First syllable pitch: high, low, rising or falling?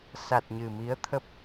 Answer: low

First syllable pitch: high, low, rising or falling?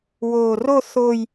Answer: low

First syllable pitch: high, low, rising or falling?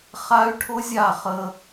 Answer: high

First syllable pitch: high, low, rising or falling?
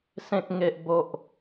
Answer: high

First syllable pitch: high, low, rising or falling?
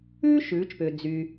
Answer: high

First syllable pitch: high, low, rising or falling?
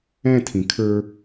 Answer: falling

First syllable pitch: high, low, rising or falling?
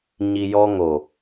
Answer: low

